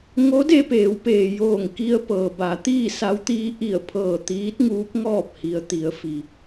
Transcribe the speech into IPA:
ŋo˧˥de˧peː˩˧wpeː˩ joː˧˩ŋki˧ə̯pɤː˩ ba˩˧t̪iː˥˨ sa˧˥wt̪iː˧˥ ʔi˧˩ə̯pʰɤː˧˩ t̪iː˧˥t̚ŋuː˧˥p̚ŋɔː˥˨p̚ hi˩ə̯t̪i˩˧ə̯fi˩

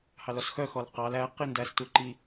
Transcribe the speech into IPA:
hɑlɔsxœxɔl qɑl æ qindæs tuǃi

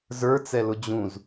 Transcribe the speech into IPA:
zə˞t͡sɛlʊ d͡ʑũz

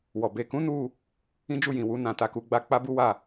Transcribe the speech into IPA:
wɔ˨ be˨kũ˨˦nu˧ | ĩ˦d͡ʒu˦˨ jĩ˨wu˨˦ nã˧ta˧ku˧ ɡ͡ba˧ k͡pa˦bu˦wa˦˨

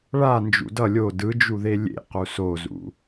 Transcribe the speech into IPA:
ɭa nd͡ʒṵdʌ lʲo dɯd͡ʒuðe lʲḛqu sozṵ

